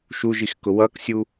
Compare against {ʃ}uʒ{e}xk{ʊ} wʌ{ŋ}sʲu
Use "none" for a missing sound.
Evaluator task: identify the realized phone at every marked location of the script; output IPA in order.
ʃ, i, ʊ, k

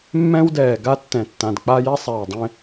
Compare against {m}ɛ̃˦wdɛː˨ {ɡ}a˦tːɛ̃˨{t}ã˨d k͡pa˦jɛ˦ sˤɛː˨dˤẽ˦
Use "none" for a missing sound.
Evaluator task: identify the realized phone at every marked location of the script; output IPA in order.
mː, ɡ, tː

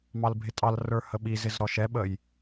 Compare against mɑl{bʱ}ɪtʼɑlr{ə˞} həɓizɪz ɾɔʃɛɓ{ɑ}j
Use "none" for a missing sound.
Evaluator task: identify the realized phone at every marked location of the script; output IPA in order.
bʱ, ə˞, ə

